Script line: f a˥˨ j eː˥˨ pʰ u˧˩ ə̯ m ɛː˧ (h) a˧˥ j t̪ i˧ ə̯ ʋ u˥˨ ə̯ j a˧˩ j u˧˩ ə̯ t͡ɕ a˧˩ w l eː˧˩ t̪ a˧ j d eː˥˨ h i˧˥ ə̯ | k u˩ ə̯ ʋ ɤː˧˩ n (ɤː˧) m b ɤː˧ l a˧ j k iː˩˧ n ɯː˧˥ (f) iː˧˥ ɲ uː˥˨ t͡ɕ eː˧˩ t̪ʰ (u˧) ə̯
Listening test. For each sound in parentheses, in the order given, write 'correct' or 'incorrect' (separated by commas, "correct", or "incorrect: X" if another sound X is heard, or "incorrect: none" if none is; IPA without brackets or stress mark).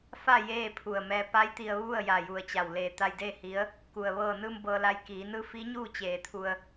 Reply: incorrect: p, incorrect: ɯː˧, correct, correct